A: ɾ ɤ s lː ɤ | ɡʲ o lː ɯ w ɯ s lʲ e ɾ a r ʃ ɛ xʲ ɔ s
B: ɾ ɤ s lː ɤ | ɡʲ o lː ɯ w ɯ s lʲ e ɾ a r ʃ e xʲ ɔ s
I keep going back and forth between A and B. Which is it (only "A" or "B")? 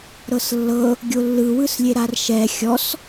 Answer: A